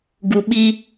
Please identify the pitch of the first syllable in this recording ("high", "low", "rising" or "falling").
low